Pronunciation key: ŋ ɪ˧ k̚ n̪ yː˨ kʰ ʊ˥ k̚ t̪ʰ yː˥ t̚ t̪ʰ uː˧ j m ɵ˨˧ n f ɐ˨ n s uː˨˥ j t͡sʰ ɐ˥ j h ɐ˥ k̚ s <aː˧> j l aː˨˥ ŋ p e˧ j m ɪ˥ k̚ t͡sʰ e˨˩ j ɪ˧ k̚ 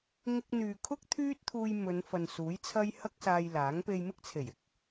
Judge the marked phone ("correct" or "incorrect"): correct